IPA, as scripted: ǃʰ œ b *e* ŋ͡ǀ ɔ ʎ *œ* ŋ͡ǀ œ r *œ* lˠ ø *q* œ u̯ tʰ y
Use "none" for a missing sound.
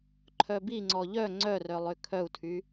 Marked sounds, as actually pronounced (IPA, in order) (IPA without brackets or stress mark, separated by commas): i, œ, œ, kʰ